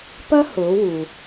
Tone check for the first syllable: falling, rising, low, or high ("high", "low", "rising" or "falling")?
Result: high